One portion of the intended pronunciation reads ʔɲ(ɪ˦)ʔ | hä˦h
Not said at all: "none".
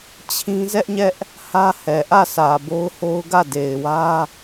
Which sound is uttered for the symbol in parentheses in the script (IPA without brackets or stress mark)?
ɛ˦